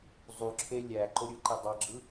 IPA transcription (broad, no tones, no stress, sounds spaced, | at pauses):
zˤ u ǁʰ e lʲ æ ǃ o ɾʲ ɯ ǃ e dˤ ɑ ɡ͡ǁ ɯ